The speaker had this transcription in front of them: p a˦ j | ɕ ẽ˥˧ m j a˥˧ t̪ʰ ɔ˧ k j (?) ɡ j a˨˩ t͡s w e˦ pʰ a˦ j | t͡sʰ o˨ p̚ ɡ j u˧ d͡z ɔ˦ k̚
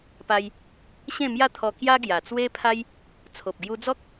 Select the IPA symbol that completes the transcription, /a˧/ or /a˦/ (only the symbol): a˦